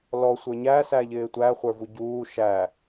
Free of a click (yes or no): yes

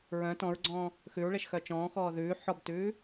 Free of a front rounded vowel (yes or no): no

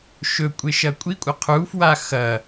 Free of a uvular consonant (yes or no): no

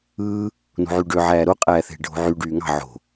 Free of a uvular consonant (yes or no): no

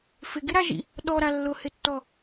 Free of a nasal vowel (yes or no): yes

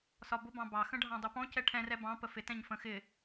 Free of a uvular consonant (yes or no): yes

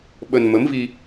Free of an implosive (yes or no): no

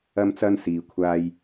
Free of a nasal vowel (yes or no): yes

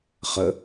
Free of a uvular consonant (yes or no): no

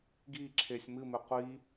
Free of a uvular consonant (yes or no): no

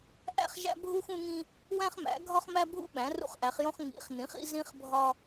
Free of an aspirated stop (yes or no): yes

